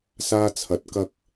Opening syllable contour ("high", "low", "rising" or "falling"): high